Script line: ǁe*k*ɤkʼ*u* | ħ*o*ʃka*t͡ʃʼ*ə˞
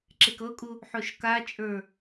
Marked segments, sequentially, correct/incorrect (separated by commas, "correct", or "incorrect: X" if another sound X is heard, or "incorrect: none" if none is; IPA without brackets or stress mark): correct, correct, correct, correct